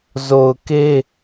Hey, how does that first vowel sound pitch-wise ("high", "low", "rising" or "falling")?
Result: low